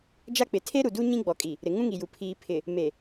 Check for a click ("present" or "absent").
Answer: absent